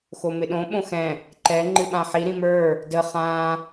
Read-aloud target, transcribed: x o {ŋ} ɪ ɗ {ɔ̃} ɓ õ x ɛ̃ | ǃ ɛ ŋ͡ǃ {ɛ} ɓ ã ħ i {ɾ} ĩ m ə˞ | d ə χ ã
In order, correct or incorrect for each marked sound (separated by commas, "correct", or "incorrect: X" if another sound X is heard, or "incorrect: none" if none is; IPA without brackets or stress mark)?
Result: incorrect: m, incorrect: õ, incorrect: ɨ, correct